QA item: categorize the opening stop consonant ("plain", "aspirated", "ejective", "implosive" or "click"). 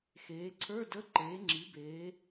click